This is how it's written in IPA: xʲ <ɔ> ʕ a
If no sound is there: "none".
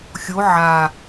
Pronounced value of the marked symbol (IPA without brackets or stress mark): o